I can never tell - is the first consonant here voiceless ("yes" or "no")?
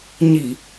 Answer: no